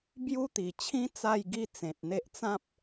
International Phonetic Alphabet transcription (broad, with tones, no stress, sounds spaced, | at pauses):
b j u˦ t̪ i˨˩ t͡ɕʰ ĩ˦ t͡s a˥˧ j ɡ i˦ t͡s ẽ˨ t̚ n̪ e˦ ʔ t͡s ã˦ p̚